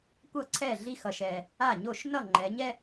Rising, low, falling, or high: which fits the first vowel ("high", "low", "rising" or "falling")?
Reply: falling